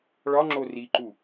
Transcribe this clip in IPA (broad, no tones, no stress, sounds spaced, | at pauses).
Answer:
ɭ ɒ ŋ͡ǁ o r i ǃ u